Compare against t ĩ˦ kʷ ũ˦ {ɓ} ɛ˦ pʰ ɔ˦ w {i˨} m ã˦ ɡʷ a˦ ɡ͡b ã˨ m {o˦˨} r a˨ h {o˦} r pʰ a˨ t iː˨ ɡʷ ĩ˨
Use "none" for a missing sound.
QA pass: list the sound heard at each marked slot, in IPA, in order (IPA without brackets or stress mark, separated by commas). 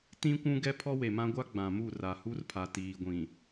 ɡ, e˨, u˦˨, u˦